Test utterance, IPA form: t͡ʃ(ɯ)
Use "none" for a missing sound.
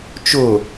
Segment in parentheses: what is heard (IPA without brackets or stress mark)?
ʊ